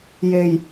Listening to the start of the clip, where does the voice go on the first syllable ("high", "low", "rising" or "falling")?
low